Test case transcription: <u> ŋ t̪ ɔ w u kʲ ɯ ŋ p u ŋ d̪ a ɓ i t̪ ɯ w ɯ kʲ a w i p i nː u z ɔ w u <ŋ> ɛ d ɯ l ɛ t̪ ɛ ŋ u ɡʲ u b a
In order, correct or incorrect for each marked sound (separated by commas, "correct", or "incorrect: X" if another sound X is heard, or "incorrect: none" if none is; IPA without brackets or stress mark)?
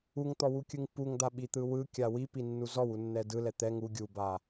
correct, incorrect: nː